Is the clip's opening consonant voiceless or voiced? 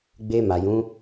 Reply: voiced